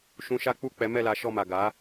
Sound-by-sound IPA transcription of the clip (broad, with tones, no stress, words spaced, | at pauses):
ʃũ˧ʃa˦k͡pu˦˨ k͡pɛ˨˦mɛ˦˨la˨˦ ʃɔ˦˨ma˨ ɡa˨˦